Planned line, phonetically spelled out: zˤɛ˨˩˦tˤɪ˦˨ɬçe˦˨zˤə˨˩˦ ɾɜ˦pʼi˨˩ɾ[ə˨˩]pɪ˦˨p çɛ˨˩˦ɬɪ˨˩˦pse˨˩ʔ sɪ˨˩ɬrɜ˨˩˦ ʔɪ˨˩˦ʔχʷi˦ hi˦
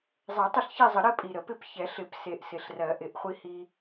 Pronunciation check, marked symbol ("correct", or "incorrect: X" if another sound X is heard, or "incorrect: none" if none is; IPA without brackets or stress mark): incorrect: ə˨˩˦